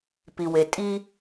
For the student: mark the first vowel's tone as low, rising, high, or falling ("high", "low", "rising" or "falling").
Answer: low